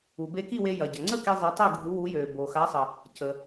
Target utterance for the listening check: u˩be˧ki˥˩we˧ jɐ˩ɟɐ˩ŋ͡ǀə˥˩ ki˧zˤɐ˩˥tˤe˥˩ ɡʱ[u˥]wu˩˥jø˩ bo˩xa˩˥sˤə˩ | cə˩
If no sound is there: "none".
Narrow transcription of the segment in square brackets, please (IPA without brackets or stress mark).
u˩˥